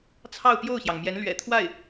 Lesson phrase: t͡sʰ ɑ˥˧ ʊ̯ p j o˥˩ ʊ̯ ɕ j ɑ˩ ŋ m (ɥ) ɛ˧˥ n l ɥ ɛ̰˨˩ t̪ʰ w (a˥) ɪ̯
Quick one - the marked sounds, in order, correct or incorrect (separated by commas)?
incorrect, incorrect